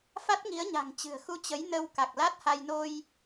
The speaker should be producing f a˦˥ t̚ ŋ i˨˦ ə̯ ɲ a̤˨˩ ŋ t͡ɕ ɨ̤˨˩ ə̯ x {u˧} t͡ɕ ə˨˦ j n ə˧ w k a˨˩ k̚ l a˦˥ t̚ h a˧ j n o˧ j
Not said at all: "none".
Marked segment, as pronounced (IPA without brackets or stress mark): u˧